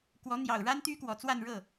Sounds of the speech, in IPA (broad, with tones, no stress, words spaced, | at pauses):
kwɔ˧˥n̪jɑ˨˩ʊ̯ɻa˥n t̪y˥kwɔ˨˩t͡swa˥˧nɻɤ˥˩